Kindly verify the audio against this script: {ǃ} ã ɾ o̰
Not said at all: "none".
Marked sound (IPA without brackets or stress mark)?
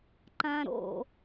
ǃ